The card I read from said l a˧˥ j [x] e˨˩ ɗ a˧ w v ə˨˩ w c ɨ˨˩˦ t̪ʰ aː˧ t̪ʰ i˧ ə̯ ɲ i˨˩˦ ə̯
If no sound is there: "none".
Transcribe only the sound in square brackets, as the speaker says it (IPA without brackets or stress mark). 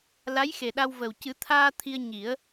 x